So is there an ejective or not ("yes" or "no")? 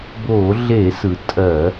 yes